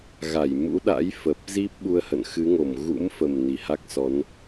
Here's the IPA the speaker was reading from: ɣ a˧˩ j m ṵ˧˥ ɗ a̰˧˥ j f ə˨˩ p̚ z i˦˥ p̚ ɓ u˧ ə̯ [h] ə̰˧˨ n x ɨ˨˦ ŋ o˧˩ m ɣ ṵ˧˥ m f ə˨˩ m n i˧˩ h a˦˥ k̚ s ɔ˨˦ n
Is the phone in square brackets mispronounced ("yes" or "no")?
no